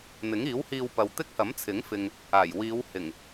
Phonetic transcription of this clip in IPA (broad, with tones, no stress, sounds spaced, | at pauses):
n̪ ɪ˨˥ ŋ iː˨˥ w h iː˧ w p ɐ˨ w t̪ ɪ˥ k̚ h ɐ˨˥ m t͡sʰ ɪ˨˥ ŋ f ɪ˨ ŋ | aː˨˩ j w iː˨˧ w h ɪ˨˩ ŋ